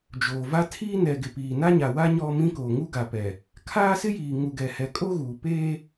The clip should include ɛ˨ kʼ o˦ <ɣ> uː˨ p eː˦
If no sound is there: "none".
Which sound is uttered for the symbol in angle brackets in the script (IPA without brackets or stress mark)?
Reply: ɣ